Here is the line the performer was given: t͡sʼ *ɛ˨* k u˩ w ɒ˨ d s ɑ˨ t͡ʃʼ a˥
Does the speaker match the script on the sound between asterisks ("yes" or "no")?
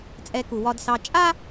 yes